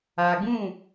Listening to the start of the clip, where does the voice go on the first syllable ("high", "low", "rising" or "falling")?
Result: low